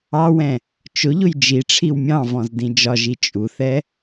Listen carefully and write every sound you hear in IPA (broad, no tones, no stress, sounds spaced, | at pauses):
ɑ w ɛ̃ | t͡ʃ ʊ ʎ ʊ j d͡ʒ i ʈ͡ʂʰ i w mʲ ɑ̃ v ɔ̃ z d ĩ d͡ʒ ɒ ʒ i t͡ʃʼ u θ ɛ